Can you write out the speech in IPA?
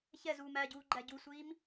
çɛzuːm æɟuːɡ͡ǃæ ɟusʷiːm

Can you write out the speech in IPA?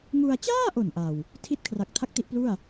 ŋu˧a̯ t͡ɕaː˥˩ʔo˨˩n ʔa˨˩w | tʰi˦˥t̚kʰra˨˩k̚tʰa˦˥k̚ ti˦˥ʔplu˥˩a̯

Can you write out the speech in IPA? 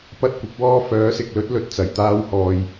pɐ˥t̚kʷɪ˨˥k̚wɔː˥ fœː˨˥sɪ˨k̚lɵ˥t̚ lɵ˨t̚t͡sɐ˨˩jt̪aː˧whɔː˨j

